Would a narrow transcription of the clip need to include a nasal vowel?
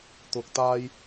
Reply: no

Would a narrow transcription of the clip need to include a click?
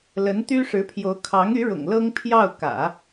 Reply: no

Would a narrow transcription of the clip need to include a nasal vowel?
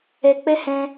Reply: yes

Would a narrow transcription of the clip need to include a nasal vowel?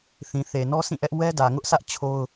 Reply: yes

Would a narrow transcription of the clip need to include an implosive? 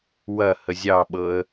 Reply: yes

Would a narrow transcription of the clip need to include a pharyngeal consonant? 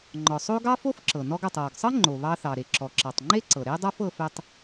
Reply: no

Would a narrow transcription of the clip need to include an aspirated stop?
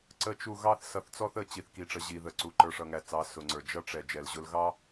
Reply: no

